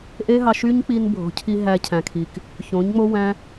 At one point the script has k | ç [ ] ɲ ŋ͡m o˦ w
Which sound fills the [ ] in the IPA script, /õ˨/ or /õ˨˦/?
õ˨˦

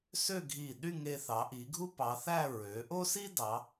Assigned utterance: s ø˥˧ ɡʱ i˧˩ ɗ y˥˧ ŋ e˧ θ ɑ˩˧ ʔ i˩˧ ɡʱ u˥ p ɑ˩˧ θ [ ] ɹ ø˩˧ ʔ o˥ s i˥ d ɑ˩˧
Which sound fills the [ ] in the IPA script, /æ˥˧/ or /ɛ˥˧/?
æ˥˧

